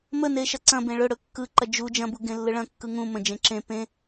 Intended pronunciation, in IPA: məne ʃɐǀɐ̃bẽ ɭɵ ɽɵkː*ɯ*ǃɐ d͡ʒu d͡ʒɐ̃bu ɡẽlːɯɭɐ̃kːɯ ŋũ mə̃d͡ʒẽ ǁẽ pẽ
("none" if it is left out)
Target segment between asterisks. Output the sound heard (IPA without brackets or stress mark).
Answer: ɯ